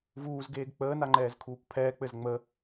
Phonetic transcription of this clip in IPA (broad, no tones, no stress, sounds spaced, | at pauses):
v uː z ɡ eː ɡ k͡p əː n a ŋ͡ǃ ɛː z kʰ uː kʷ pʰ ɛː k͡p ɘ z ŋ͡m ə